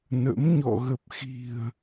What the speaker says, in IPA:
nə̰˧˥m ɲɔ̰˧˨ɣə˨˩p̚ xi̤˨˩ə̯

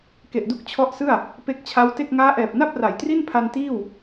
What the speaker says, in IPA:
ke˨˩ʔdu˦˥k̚ t͡ɕʰɔ˦˥ʔsɯ˥˩a̯ | pe˦˥k̚t͡ɕʰa˦˥wte˥˩k̚ ŋaː˦˥ʔɛː˨˩p̚na˥˩p̚ ra˨˩jtri˥˩npʰa˧n tiː˥˩w

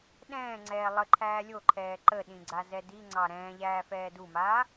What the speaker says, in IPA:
ɗɛ̃ːŋ͡ǀɛː lˠəǃʰæː lʲoǃʰɛː ǃəɗĩ ɡ͡ǀazɛdiŋ͡ǀɑ ɾɛ̃ː ʎæːfɛːdumaː

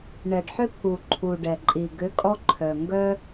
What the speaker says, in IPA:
ɳɛ˩ɖħʏ˦pʰu˩ ǃʰu˩ɖɛ˩ǃʼi˩ ɡʏ˨˥ kʼɔ˦ǃʰœ˩ ŋɡœ˦

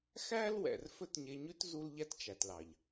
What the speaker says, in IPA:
xæ˦l wɛ̰˨rfɵ˦tɲe˧ɲʉ˦t zu˦lʎæ˦tt͡ʃæ˨tlɑ˨ʎ

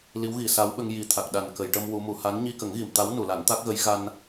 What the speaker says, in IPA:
li˧˥wɣi˨˩˨ sa˧˥wɓə˧ŋ ji˨˩t̪ʰa˨˩k̚ ɗa˨˩nkə˨˩˨j ʈə˧m wu˧˥mu˨˩˦ ha˧˥n ɲi˧kə˨˩˦ŋɣi˨˩˨mt̪a˧˥w nu˨˩˨la˨˩˦nt̪a˦˥k̚ɣə˧˥j ɣa˧n

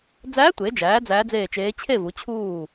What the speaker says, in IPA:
d͡zæː˧˥tʷe˩˧d͡ʒæː˩˧ d͡zæː˧˥d͡zeː˦˨t͡ʃeː˧˥ t͡ɕʰe˦˨vu˩˧ t͡ɕʰuː˦˨

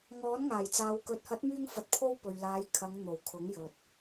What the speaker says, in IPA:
ŋɔː˨˥nŋaː˨˩jt͡saː˨wkɵ˨˥t̚ hɐ˨˥t̚myː˧ŋfɐ˨t̚pʰo˧w pɵ˨ɥlaː˨˧jkʰɐ˨˧ŋ n̪o˨˩wkʰʊ˨˥ŋjɵ˨t̚

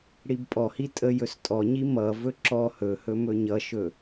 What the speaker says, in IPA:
ɽibpʼɔhi tʼə jɵstʼɔɲi mʌvɵ ǁɔ hɵhɵ mɵɲʌʃɵ

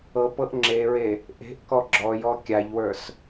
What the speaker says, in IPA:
ɤpɤʔ ŋ͡ǁeɹe | ʔe̤ʔkɔ ɡ͡ǁɔjɔ kʲaʎwə˞s

